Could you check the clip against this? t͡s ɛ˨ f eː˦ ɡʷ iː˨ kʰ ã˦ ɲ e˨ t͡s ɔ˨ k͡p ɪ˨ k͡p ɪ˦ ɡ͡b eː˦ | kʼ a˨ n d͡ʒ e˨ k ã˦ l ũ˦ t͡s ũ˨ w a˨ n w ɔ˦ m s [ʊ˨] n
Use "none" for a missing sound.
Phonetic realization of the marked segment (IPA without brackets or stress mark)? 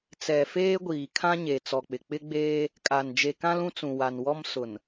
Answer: ʊ˨